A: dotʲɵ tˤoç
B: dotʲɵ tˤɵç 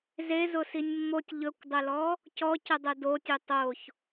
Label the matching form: A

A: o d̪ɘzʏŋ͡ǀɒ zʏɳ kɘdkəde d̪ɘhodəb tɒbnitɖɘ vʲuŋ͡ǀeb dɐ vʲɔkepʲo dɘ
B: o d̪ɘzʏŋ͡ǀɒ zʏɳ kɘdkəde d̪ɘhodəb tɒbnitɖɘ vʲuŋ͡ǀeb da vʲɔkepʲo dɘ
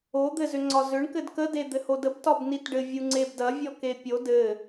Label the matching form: A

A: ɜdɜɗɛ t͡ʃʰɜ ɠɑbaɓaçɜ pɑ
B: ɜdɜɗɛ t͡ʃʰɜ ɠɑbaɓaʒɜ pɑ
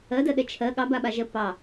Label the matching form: B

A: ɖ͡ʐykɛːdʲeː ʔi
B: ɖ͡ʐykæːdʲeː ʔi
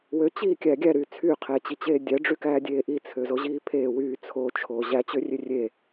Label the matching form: B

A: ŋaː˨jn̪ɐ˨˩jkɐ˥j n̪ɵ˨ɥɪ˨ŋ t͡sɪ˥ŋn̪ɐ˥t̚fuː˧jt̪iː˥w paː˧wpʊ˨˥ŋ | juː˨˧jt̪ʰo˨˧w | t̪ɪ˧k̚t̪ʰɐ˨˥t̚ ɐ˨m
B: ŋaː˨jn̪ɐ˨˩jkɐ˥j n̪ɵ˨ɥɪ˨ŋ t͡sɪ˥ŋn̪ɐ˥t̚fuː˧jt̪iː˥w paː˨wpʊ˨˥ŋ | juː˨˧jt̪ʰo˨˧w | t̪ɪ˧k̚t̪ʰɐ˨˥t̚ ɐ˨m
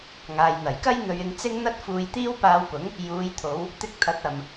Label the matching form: A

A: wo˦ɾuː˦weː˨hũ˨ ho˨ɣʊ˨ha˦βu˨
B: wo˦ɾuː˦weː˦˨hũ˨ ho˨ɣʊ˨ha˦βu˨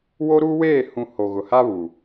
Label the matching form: B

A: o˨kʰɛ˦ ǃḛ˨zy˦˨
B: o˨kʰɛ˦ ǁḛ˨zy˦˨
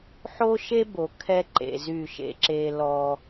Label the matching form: A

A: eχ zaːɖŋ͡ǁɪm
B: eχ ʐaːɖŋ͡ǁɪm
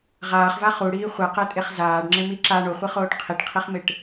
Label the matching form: A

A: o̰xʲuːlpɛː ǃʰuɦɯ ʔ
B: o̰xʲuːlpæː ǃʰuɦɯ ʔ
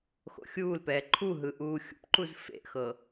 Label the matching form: A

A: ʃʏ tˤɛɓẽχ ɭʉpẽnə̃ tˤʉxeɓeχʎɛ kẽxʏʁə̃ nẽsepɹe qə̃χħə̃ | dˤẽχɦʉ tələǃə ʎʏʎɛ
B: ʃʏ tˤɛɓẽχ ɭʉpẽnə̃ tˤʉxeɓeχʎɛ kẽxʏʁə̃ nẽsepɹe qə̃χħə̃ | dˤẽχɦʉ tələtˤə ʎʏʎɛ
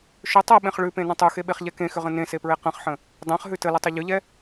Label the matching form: B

